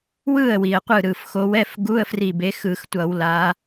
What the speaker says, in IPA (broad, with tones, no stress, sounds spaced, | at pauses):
w ɯ˥˩ ə̯ w i˩ ə̯ qʷ ɯ˧˩ ɾ ɯ˩ f x o˨˦ w ɛ˧˥˧ f ɡ u˧˥˧ ə̯ f r i˧˩ b e˨˦ x ɯ˧˩˧ x tʷ ʌ˧˩˧ w l a˨˦